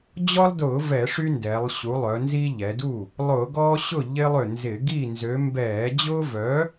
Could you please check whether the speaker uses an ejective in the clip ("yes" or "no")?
no